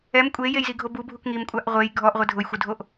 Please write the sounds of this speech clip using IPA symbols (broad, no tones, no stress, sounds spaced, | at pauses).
ɛ m kʷʼ e j e j z i ɡʱ o b u bʱ u k ŋ i m kʷʼ a ʔ ʁʷ e j ɡʱ ɔ ʔ ʁʷ e dʱ ʊ j xʷ ɪ dʱ o ʔ